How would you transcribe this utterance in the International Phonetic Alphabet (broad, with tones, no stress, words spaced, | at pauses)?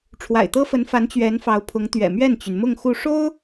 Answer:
ʈ͡ʂʰwa̰˨˩ɪ̯t̪ɤ˥fə˧˥nfa˧˥n t͡ɕɥɛ˧˥nfɑ˧˥ʊ̯ pʰʊ˧˥ŋt̪ɥɛ̰˨˩ mɥɛ˥˩nt͡ɕy˩nmʊ˥˧ŋ xu˥˩ ʂo˥ʊ̯